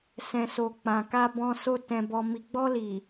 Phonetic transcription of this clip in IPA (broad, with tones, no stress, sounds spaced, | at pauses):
s ɛ̃˨ s o˨ k͡p ã˨ k a˧ b ɔ̃˧ s o˧ t ɛ̃˨ b ɔ˨ m i˨ ɡ͡b ɔ˧ l i˨